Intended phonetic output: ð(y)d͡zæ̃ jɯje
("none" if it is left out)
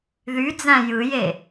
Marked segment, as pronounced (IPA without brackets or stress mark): y